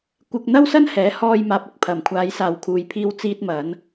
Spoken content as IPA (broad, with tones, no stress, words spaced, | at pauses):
kʷɪ˧k̚n̪ɐ˥wsɐ˥n hɛː˨˥ hɔː˧j maː˧p̚ɪ˧k̚pʰɐ˨m kʷʰaː˨˧jsaː˨wkʰuː˨j pʰiː˧wt͡siː˧t̚mɐ˨˧n